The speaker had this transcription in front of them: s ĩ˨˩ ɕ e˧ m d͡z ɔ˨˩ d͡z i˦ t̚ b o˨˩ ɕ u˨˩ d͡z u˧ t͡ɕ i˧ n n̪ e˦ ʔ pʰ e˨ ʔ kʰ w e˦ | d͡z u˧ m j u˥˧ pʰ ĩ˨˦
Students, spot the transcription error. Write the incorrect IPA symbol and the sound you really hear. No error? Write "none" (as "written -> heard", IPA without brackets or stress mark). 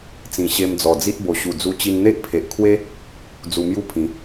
s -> t͡s